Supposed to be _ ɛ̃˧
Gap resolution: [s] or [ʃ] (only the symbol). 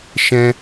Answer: ʃ